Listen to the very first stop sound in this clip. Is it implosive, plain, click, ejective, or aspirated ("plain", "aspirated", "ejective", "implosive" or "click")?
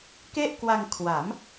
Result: plain